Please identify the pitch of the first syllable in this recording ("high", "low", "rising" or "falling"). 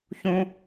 high